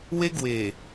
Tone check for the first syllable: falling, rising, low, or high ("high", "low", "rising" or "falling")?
high